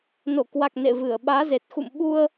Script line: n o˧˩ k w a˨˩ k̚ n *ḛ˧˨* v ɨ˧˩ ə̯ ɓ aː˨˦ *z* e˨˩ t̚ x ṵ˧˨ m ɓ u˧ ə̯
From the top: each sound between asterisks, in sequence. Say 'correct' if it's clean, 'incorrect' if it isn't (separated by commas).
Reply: correct, correct